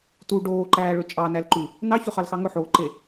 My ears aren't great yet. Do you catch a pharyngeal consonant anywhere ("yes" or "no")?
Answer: yes